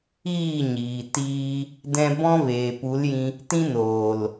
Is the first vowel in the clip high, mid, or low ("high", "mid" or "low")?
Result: high